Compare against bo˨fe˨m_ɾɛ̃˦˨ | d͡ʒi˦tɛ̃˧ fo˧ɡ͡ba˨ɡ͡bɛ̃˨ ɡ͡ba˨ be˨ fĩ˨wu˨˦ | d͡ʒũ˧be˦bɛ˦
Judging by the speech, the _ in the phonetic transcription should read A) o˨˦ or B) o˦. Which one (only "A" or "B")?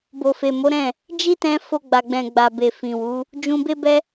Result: A